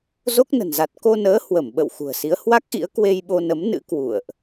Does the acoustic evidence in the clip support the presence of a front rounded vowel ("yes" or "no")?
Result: no